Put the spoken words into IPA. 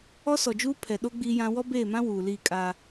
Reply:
ɔ˦ s ɔ˨ d͡ʒ uː˦ pʰ ɛ˨ ɗ o˦ ɡ͡b iː˦ j ã˦ w ɔ˦ b eː˦˨ m ã˦ w uː˨ l iː˦˨ kʼ aː˦

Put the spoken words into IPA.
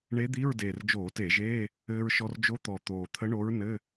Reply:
ɳ e˧˥ d̪ i˧˥˧ ɹ d eː˨˩ r d͡ʒ oː˧˩˧ t e˧˩˧ ʒ eː˧˥˧ | ɘː˧ ɹ ʃ ɔ˧ r d͡ʒ o˧˥ t̪ ɔ˨˩ t̪ oː˨˩ t̪ʰ ə˧˥ ɳ o˧˥ ɹ n ɘ˧˥˧

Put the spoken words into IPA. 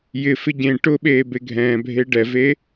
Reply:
j ɪ f ɪ ɟ ẽ ʈ ʊ ɓ eː b e ɡʱ ɛ̃ː bʱ e ɖ ɛ v e

